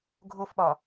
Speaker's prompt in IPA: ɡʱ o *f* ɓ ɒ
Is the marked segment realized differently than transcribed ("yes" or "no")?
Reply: no